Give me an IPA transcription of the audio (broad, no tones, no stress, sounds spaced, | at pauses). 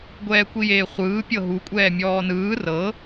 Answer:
ɡʷ ɛː kʷ i j eː χʷ ɯː pʲ ɤ ɦ u kʷʼ ɛː mʲ ɔː n ɯː r ɤ